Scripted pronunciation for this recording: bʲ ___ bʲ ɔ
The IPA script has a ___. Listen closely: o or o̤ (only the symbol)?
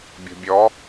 o̤